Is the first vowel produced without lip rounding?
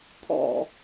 no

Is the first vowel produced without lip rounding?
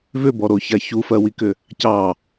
no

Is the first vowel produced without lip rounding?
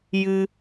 yes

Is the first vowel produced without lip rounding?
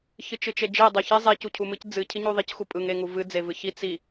yes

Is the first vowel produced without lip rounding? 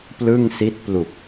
yes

